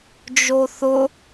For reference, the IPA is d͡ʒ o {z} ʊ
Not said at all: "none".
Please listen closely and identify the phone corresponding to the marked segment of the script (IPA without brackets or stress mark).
θ